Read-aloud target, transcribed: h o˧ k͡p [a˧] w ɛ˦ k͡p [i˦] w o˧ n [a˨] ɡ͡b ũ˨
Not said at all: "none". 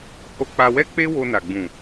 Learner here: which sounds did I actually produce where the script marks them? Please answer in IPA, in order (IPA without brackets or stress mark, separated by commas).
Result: a˧, e˦, a˨